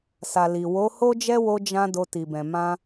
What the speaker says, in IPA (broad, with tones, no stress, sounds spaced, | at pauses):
s a˨ l i˨ w o˨˦ h o˦ d͡ʒ ɛ˦ w o˧ d͡ʒ ã˧ d o˧ t i˨ b ɛ̃˨ m ã˧